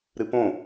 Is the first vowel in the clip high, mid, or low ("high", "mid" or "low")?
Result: high